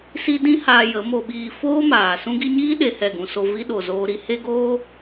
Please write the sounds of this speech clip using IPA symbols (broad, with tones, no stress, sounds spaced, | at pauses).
s i˦ d ĩ˦ h aː˧ j ə˨˦ m o˧ ɓ iː˧ f oː˦ m aː˨ s ũ˧ ɡ i˧ ɲ iː˦ ɗ e˨ h ɛ˦˨ ɡ ũ˧ s o˧ v i˦ ɗ o˨ z oː˧ ɾ i˧ h e˦ ɡ oː˦